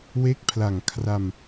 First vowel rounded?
no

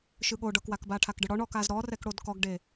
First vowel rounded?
no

